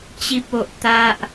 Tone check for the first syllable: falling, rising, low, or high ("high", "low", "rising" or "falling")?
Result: high